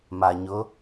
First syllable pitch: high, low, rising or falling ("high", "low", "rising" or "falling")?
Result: low